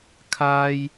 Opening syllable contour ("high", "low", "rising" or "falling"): high